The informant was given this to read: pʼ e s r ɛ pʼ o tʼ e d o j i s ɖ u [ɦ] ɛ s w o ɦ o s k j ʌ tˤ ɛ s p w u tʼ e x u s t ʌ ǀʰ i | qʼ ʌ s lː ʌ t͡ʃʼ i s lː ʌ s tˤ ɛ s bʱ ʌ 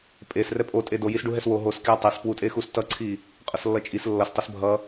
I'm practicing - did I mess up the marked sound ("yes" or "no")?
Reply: no